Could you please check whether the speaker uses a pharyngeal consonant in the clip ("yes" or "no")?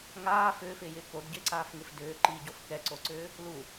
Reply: no